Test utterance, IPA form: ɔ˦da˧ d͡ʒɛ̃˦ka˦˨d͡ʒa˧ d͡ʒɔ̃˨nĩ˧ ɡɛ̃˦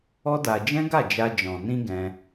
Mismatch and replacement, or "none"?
k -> ɡ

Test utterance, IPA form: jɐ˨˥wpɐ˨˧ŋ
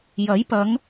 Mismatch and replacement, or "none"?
w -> j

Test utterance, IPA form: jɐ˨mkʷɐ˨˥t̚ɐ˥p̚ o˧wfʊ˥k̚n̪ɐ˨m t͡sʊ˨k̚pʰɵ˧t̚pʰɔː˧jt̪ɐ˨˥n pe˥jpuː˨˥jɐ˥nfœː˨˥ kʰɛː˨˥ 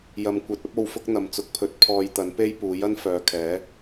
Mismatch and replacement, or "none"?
œː˨˥ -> œː˨˧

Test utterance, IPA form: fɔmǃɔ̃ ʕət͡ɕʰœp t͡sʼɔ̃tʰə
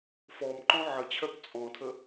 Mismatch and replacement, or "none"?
none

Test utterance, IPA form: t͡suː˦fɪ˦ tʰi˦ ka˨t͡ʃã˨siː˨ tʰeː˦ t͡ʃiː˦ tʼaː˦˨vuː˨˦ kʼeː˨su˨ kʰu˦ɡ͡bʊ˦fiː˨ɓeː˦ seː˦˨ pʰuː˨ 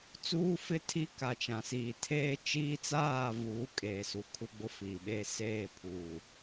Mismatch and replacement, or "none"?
tʼ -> t͡s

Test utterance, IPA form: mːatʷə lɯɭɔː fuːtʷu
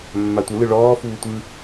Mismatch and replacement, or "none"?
u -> ɯ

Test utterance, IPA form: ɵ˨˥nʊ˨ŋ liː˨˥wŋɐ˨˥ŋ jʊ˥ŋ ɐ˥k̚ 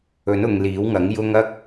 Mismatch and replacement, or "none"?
none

